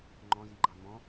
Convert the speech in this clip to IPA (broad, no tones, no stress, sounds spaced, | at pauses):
ŋ͡ǃ ɔ̃ z i ɡ͡ǃ ɑ m ɔ̃